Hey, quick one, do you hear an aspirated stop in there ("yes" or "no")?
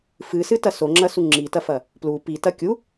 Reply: no